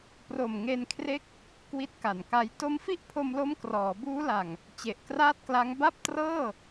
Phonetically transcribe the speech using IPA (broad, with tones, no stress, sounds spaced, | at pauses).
p r o˨˩ m ŋ e˧ n kʰ r e˦˥ k̚ | k w i˦˥ t̚ k a˨˩ n k a˦˥ j t o˦˥ m f i˥˩ ʔ pʰ o˧ m l o˦˥ m k r ɔː˩˦ b uː˦˥ l a˨˩ ŋ | t͡ɕ e˨˩ ʔ k r aː˥˩ t̚ k l a˦˥ ŋ b a˥˩ p̚ t r ɤː˥˩